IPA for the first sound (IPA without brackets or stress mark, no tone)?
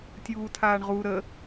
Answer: tʲ